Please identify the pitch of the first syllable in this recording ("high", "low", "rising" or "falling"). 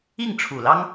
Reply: falling